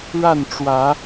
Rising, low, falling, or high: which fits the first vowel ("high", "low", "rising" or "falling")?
falling